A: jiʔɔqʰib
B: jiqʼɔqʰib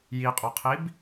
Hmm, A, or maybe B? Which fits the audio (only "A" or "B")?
B